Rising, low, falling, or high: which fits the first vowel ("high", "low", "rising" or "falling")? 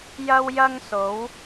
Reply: high